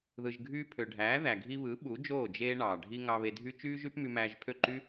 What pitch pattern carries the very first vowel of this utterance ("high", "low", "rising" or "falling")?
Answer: low